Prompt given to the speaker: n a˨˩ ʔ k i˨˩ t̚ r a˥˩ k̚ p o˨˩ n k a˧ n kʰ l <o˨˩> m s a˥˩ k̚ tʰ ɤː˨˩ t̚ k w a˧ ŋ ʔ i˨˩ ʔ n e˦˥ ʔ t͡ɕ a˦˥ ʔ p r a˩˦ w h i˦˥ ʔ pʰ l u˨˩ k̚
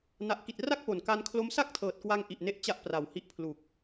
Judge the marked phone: incorrect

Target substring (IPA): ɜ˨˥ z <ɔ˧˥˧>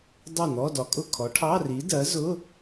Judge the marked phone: incorrect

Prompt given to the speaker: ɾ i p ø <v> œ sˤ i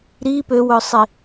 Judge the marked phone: incorrect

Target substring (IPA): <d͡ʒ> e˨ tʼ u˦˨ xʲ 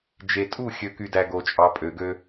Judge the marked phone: correct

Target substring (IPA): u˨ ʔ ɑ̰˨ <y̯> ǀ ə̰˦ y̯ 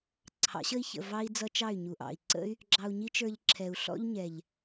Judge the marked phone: incorrect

